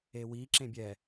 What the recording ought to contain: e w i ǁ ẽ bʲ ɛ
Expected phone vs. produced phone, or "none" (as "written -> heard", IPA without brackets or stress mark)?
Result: none